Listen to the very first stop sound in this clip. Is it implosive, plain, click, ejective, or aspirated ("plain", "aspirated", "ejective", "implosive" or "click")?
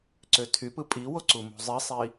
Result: click